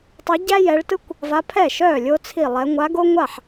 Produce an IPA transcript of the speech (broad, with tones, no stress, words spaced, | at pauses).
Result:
tˤœ˧˥ɟæ˥ jɛ˧˥ɭ tɯ˥kʷ | va˧˥pʰɛ˥˩ʃœː˥˩ lʲo˥t͡sʰi˥˩lˠɛ˧˥ ŋʷa˧˥ɡo˥ ŋʷa˥˩ħ